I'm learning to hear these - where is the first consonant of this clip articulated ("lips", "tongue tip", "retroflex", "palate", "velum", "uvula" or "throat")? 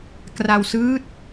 velum